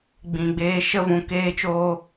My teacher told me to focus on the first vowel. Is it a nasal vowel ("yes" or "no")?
yes